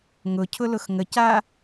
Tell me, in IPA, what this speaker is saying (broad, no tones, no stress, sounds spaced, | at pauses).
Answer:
ŋ ʊ cʰ ʊ l ʊ x ŋ ə c a